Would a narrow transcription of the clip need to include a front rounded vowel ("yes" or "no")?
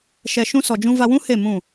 no